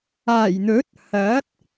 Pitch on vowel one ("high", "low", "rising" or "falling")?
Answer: low